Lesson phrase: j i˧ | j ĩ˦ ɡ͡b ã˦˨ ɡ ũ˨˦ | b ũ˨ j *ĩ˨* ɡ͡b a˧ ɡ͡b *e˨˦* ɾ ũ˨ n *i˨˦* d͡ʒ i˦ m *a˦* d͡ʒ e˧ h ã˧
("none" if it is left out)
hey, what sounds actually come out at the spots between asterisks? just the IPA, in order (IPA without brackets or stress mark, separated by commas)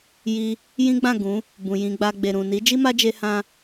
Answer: ĩ˧, e˨, i˨˦, a˦